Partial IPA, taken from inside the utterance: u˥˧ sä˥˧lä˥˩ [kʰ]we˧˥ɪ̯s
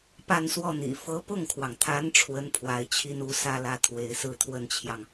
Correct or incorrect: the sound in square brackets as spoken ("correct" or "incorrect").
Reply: incorrect